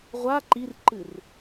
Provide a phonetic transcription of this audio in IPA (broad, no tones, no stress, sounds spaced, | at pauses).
ʁʷ a ǃ i r ǃ ɨ r